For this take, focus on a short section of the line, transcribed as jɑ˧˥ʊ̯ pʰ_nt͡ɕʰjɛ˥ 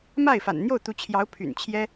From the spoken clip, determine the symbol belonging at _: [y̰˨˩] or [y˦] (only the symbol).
y̰˨˩